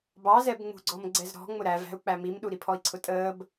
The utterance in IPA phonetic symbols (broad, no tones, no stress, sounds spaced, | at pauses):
b ɑ z ɛ b ŋ͡m ṳ ɡ͡ǀ ɔ m ɡ͡ǀ ɛ z ɾ ɔ̤ ŋ͡m ʊ ɾ æ v æ̤ u̯ k͡p æ m i m ɗ u ɾ i pʰ ɔ i̯ ǀʰ ʊ tʼ əː b